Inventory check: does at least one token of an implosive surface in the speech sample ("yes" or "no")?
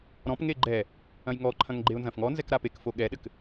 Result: yes